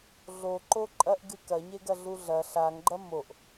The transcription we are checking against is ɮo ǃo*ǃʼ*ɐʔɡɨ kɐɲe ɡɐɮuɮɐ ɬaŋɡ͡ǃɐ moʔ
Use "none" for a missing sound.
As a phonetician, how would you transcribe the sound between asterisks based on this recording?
ǃʼ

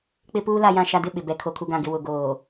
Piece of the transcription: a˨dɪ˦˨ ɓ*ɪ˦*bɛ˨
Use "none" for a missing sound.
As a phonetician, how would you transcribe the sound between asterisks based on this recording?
ɪ˨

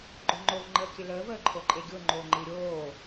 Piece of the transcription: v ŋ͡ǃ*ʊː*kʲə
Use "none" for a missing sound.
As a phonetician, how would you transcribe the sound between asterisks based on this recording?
əː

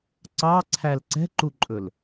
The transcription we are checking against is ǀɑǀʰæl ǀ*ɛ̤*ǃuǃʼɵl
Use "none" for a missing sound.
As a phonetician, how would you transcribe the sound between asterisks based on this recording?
ɛ̤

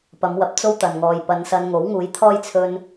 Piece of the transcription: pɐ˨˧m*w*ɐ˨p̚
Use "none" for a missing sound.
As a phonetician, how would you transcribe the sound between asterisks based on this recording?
w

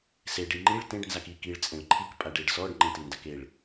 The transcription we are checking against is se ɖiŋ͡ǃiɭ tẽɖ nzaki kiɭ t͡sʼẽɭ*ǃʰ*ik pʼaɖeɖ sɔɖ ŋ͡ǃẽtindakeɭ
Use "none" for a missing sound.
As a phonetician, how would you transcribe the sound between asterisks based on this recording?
ǃʰ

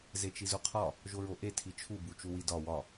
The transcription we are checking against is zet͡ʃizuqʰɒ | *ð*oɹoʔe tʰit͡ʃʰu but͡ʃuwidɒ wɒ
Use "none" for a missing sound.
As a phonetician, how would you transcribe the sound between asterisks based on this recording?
ʒ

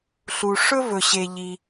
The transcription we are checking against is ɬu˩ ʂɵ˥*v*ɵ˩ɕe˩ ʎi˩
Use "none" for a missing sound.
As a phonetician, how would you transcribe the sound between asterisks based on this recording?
v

